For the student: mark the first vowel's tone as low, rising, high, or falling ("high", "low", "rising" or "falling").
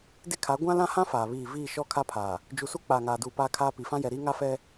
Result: high